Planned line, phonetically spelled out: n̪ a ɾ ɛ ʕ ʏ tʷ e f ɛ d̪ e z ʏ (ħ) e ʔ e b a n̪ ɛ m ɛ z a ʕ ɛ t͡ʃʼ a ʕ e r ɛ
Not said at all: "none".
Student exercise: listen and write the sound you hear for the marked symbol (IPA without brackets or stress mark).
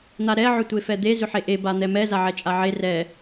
ħ